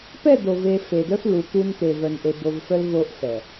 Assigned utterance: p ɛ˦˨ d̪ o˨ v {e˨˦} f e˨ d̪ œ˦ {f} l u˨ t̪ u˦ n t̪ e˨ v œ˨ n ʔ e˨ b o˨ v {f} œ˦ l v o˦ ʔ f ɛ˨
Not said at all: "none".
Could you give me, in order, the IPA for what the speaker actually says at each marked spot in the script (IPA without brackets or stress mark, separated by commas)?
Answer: e˨, f, f